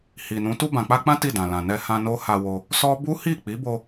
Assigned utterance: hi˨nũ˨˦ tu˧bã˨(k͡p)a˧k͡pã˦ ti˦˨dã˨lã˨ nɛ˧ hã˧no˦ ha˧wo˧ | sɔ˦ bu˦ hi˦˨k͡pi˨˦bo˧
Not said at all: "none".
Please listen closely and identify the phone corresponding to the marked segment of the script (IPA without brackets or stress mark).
k͡p